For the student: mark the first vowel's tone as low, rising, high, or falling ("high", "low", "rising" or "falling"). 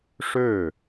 falling